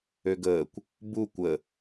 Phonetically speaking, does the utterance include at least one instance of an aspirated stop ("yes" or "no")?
no